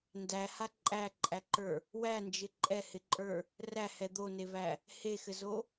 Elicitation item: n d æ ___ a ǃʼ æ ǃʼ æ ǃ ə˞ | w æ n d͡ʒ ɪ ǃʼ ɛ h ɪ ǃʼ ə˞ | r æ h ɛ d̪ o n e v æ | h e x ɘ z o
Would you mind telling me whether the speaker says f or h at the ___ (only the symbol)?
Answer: h